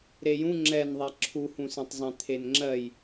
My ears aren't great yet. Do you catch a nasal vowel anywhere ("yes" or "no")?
yes